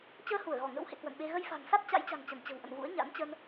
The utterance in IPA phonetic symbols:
t͡ɕ əː˧ h u˧˩ ə̯ ɣ ɔ˧˩ ŋ ə̰˧˥ w h ḛ˧˨ k w ə̰˧˨ n ɓ e˧ ɣ ə˧ j f a̤˨˩ ŋ s a˦˥ t̚ t͡ɕ a̰˧˥ j t͡ɕ a̤˨˩ ŋ t͡ɕ ə˧˩ n t͡ɕ ə̤˨˩ w ʔ ə̰˧˨ n v ṵ˧˥ ə̯ ɲ a̰˧˥ n t͡ɕ ə˧ n

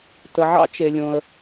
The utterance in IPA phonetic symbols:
t ə˩ ʕ ɑ̰˦ t͡ʃ e˩ lʲ õ˩ ə̯

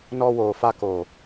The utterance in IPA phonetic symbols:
n ɔ˧ w oː˨ f a˧ k o˨

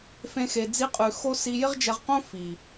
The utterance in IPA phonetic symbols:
f ẽ˦ x e˧ d͡z i˦ qʼ ʉ˧ x o˦ s i˧ j ɪ˦ ʁ d͡ʒ ɛ˧ ʁ q õ˦ f i˨

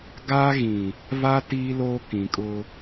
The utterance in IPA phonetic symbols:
ɡ aː˦ ɣ ĩ˨ | v a˦ t iː˦ l oː˦ k ĩ˨ kʼ ʊ˦

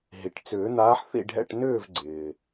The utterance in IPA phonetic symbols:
ɦ i˩ ʈ t͡s ʏː˨˩˦ n̪ aː˨˥ ħ θ ḭ˥˨ ɖʱ ɛ̰˥˨ ʈ n ʏː˥˨ v ɡ͡ǀ ɪː˩

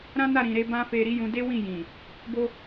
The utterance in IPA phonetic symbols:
ɾ ã˦ n a˦˨ ɾ ĩ˨ ɾ e˧ b ã˦ f e˧ ɾ i˦ j ũ˧ d e˦ w ĩ˦˨ j ĩ˨ | b o˧

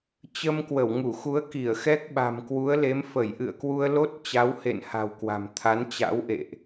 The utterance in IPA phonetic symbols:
t͡ɕ ə˧ m k w ə˧˩ w ŋ u˧˩ x u˨˦ ə̯ k i˧˩ ə̯ x ɛ˦˥ k̚ ɓ a̤˨˩ m k w u˨˦ ə̯ l e˨˦ m f ə˧˩ j ʔ ɨ̰˧˨ ə̯ k w u˧ ə̯ l o˦˥ t̚ t͡ɕ a˨˦ w h ḛ˧˨ n h a̤˨˩ w k w a̤˨˩ m t̪ʰ a˨˦ n t͡ɕ a̰˧˥ w ʔ ḛ˧˨ ʔ

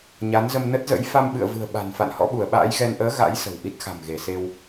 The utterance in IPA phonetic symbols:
ɲ a˨˦ n z ə˧ m n ə˦˥ t̚ z ə̰˧˥ j f a˧ m ɓ ɨ̰˧˨ ə̯ v ɨ̤˨˩ ə̯ ɓ a̤˨˩ n f a̰˧˨ n h ɔ̰˧˥ ɓ u˧˩ ə̯ ɓ a̰ː˧˥ j ɣ ɛ˧ n ʔ əː˨˦ ɣ a̰˧˥ j s ə̤˨˩ w ʔ i˦˥ t̚ x a̤˨˩ m ɣ e˧˩ s e˧ w

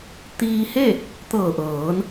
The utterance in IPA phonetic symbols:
t̪ iː˧ h e˥˨ | t̪ ɤː˧˩ ʔ ɤː˩˧ n

